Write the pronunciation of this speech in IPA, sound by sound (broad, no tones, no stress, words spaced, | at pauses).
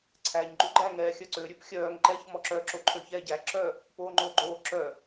ǀʰæɲ ɡ͡ǃʉɡ͡ǃæ ŋɛːxʲœǀø ɾʲʉpxʲœːŋ ǃɛç mɔǁœ ǁoǃʰøçɛːɟæ ǁœ | poːŋ͡ǃoːɡ͡ǃoː ǁœ